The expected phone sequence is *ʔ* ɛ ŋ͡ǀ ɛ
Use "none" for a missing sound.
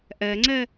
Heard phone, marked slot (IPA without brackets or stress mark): ʔ